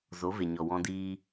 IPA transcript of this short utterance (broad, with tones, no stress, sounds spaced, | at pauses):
z o˨˦ v e˨ ɲ ɔ˨ w ɔ̃˧ d iː˧